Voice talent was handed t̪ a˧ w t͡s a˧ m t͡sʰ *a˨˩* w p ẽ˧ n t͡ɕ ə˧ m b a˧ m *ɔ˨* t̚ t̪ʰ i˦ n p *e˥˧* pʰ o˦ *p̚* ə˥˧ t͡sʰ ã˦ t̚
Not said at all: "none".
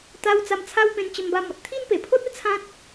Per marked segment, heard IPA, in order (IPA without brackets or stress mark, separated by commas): a˦, ɔ˨, e˨˩, t̚